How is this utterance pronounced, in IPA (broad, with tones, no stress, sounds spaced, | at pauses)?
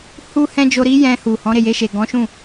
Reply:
h u˦ h ɛ̃˦ d͡ʒ o˧ ɾ i˦ j ɛ̃˧ h u˨ h ɔ̃˨˦ ɾ e˦˨ j e˧ ʃ e˨ ɡ ɔ̃˨˦ ʃ ũ˦˨